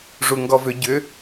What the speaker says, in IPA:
ʐuŋɡɔvʏ ɟʏ

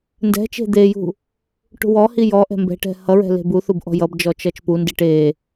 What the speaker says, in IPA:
ndɛ̤t͡ʃe̤ d̪ejṳ | ʈṳwɔhi jɔ ʔɛ̤mbɛ̤ʈɛ̤ hʌɹɛ̤ le̤buθub ʔɔ̤jʌbd͡ʒɔ t͡ʃʌt͡ʃpundiʈ e

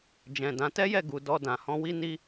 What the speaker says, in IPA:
d͡ʒɛ̃˨dã˨˦ tɛ˦jɛ˦˨ ɡu˨ dɔ˧dã˨hɔ̃˧ wi˦ni˦

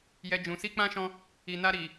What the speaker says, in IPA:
jɛ˨ d͡ʒũ˨ si˧ k͡pã˦ʃɔ̃˧ | i˨na˧ ɾi˨

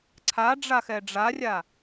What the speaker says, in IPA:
ǀʰa ɖ͡ʐaxɛɖ͡ʐarʲa

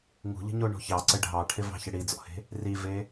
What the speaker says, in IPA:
ŋṳʎə̤ɲoɳo̤ çɑǀə ɖʱɑʈʰɪvɑ̤çɘ ɽid͡zɔ̰he̤ | rive

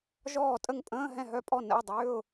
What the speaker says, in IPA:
ʒɔː˥˨tʼə˥˨ŋ pʼə̃ː˧˥˧ ɦɛ̃˥˨ɦœ˧˥˧pʼɔ˥˨ nə̰˧˥˧ɪ̯dˤʏː˧˥˧ʊ̯

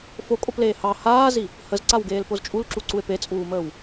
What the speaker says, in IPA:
fokʼopleː hɑ haːzi | həzǀawɡeːlpoz t͡ʃʼulǁuǀue̯ pet͡sʼuːməːw

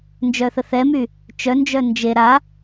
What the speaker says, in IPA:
nd͡ʒœθəθɛmy | t͡ʃœnd͡ʒœ nd͡ʒe ɾa

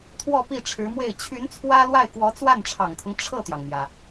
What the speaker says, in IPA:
t̪ʰwɔ˥˧ pi˥˩ʈ͡ʂʰɻ̩˧˥mwe˥˩ɪ̯ t͡ɕʰy˧˥n t͡sʰwä˥lwa˥˩ɪ̯ kwɔ˧˥t͡swa˥˩nʈ͡ʂʰɑ˨˩ŋt̪ʰʊ˦ŋ ʈ͡ʂʰɤ˥˩t̪jɑ˩ŋmjä˩

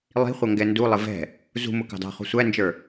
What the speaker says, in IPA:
lˠi̤χʷʌ ŋɡɛndulˠɪ vɛ̤ | zṳmʊ kɑ̤dɑ̤χṳ sʷænd͡ʒə˞

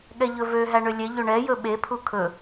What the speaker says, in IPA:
ɠɛʎɵvø ɦæɳølʲɛ ʎøɳɛ jɵɓe pʰukʰɵ

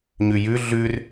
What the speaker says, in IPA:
ɲʉjʉ ɮʉr

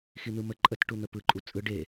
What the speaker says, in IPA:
xin̪ɯmə ǃʼət ʈun̪əpɯ ǃʼut͡sʼɯ ɖe

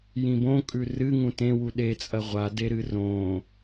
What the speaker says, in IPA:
jĩbõkʼʉ rɨ ŋũtẽwu ɗet͡sʼɐ ʁʷadeɾɨ rõ

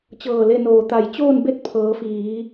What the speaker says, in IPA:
t͡ɕɤː˧˩le˥˨noː˧˩ t̪a˧˩j t͡ɕoː˥˨nbe˥˨t̚ pʰɤː˩˧fiː˩˧

